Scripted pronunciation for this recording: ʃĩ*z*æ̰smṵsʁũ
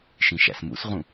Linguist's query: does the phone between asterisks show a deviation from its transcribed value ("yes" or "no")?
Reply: yes